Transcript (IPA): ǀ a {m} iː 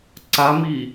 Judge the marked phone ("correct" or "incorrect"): correct